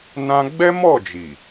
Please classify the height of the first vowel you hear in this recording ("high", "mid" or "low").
low